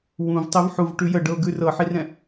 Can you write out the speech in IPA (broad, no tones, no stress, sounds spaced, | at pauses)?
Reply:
w ũ v tˤ ɛ v ħ u v ʈ ʉ j ə ɖ ɤ ɡ ʉ r ɤ ħ i r ɛ̃